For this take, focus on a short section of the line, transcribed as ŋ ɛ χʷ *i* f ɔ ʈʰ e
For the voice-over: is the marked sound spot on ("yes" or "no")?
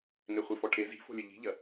yes